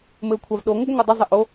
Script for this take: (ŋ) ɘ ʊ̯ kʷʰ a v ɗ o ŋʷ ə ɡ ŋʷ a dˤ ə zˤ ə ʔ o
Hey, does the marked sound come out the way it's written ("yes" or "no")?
no